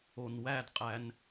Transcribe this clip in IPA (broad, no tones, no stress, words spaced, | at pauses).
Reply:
onwædqʼæn